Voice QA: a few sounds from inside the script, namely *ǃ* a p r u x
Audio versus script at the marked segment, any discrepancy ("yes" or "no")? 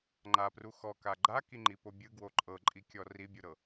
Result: yes